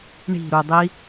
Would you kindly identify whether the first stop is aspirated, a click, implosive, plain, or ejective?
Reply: plain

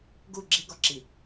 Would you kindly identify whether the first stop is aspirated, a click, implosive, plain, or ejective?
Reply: plain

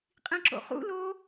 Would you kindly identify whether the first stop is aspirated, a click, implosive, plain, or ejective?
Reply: ejective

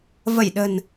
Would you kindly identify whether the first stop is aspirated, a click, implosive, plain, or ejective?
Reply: implosive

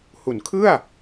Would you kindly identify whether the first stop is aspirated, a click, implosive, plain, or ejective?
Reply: aspirated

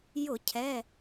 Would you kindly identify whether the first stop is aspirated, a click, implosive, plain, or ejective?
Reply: aspirated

